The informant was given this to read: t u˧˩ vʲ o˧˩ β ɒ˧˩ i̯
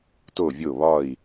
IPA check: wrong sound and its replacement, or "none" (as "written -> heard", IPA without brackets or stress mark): u˧˩ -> o˧˩